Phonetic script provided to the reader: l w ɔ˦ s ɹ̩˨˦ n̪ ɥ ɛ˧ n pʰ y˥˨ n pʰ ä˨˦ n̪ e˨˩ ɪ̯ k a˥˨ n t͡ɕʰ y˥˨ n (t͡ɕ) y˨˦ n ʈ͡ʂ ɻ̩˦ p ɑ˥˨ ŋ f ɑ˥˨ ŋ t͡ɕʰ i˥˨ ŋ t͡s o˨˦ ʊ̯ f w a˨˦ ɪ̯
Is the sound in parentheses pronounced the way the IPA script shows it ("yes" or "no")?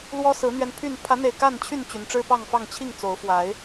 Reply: yes